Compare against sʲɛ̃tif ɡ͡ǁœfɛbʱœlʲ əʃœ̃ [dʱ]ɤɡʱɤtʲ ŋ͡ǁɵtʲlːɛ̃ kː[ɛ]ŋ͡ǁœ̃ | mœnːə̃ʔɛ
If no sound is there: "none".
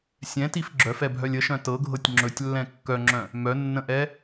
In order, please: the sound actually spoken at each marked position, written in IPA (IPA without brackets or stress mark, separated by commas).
t, œ